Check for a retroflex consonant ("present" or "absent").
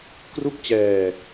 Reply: absent